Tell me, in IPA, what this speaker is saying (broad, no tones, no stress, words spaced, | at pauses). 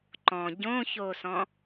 ǃɔ̃ ɟõçosɔ̃